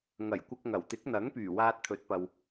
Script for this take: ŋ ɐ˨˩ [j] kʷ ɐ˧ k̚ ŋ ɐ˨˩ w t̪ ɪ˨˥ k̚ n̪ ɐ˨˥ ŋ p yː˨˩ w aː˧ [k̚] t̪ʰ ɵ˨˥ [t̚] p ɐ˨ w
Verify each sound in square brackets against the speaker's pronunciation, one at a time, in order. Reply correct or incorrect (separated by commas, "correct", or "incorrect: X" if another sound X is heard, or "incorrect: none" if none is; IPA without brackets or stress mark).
correct, incorrect: t̚, correct